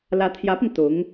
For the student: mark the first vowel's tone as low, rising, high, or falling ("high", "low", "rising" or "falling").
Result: rising